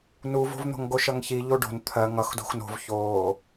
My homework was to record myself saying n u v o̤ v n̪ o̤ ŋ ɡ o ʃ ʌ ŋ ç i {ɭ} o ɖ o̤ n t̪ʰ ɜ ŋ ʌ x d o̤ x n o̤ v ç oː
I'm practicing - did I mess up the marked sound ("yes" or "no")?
yes